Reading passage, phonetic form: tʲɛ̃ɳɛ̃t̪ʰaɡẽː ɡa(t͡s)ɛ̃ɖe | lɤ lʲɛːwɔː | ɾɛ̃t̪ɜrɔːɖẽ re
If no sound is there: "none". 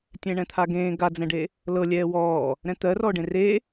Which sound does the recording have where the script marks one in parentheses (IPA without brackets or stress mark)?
d͡z